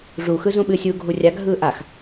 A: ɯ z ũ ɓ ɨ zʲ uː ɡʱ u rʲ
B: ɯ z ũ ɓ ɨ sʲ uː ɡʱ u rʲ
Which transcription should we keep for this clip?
B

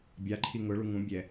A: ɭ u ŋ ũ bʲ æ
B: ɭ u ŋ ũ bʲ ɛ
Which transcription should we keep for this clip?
B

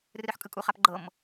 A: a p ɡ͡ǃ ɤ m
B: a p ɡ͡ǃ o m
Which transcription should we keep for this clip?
A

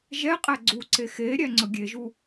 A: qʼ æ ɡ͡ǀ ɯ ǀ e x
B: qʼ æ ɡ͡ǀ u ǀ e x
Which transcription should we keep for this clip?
B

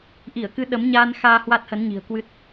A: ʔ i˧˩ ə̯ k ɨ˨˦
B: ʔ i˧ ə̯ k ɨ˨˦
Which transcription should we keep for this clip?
A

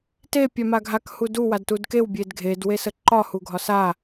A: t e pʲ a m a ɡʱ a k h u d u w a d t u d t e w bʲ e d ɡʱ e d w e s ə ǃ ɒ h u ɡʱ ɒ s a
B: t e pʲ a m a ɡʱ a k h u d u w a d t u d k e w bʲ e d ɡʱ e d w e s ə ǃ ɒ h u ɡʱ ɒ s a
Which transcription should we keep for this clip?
B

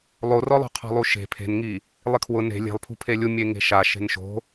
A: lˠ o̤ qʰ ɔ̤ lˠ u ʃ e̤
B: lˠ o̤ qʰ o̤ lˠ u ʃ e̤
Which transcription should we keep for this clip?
A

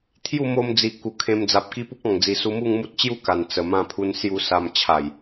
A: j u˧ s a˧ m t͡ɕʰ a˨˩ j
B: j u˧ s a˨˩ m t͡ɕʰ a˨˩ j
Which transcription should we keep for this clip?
A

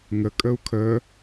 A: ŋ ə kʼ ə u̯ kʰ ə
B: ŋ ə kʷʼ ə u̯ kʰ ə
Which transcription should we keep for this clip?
A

